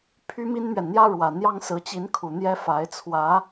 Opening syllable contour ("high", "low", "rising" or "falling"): high